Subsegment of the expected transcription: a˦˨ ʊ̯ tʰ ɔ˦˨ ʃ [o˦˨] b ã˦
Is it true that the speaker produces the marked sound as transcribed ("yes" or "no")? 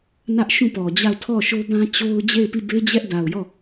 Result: no